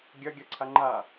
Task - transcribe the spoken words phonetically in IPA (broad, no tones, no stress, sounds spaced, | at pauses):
ɡʲ ɐ ɡʲ ɐ ǀʰ a ŋ͡ǃ a